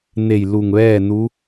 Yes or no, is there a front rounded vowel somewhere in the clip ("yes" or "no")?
no